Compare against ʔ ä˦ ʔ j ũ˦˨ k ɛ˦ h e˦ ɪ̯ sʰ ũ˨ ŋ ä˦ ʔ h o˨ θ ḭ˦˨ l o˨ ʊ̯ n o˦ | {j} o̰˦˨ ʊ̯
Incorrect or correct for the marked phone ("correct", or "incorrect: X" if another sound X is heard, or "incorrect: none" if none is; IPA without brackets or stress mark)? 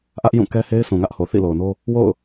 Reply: incorrect: w